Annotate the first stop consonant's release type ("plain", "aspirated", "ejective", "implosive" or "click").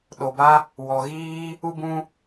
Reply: implosive